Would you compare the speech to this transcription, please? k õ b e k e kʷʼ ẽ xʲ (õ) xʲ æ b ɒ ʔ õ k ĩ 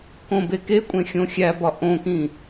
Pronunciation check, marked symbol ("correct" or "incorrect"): correct